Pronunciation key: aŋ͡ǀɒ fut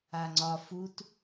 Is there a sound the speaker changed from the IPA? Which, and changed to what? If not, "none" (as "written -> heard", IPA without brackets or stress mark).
none